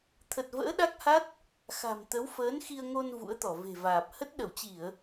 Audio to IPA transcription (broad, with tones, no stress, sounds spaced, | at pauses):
t̪ʰ ə˨˩ t̚ v ə̰ː˧˥ ɗ a˦˥ k̚ h a˦˥ t̚ | x a̤˨˩ m t̪ ə˨˦ w f əː˨˦ n x i˧ ə̯ ŋ o˧ n v ṵ˧˥ ə̯ t̪ ɔ˧˩ v e̤˨˩ v aː˨˩ p̚ h ə˦˥ t̚ ɗ ə˧˩ w t͡ɕ i˧˩˨ ə̯